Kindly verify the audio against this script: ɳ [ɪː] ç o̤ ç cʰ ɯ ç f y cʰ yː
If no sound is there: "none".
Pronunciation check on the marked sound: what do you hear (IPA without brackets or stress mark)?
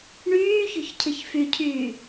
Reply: yː